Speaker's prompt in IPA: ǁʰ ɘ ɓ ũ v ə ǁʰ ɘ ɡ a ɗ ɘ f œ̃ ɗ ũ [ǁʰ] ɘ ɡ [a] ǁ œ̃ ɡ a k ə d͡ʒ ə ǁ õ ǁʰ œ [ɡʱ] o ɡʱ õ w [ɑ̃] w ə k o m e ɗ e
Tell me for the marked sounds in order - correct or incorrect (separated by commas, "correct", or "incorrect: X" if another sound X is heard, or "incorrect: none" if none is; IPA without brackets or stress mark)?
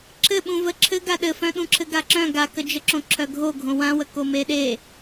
correct, correct, correct, incorrect: ã